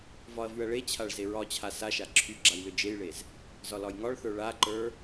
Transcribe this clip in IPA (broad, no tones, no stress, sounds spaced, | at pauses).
v ɒ ɐ̯ v y ɐ̯ ɭ e t͡ɕʰ a ɭ z e ɹ ɒ t͡ɕʰ a s a ʃ a ǁʰ y ɡ͡ǁ a j l ʏ d͡ʒ e j ɭ e z | z ɒ l ɒ j ŋ ɒ ɭ θ ə˞ ɭ a ǃ ə˞